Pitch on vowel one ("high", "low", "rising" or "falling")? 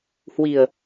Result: low